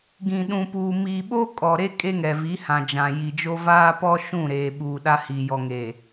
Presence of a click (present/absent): absent